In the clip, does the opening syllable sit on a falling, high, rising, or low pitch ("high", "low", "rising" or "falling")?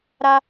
high